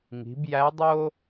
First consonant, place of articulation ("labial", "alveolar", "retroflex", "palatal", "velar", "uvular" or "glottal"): velar